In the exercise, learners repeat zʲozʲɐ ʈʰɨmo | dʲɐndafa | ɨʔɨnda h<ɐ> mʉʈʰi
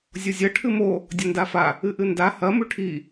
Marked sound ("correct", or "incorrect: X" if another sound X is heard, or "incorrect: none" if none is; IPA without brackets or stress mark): correct